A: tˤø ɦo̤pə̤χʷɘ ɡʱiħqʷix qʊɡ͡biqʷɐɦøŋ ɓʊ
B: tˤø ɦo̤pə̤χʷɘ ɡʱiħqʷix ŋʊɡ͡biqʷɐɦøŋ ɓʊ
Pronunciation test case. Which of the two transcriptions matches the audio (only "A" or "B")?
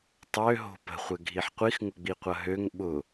B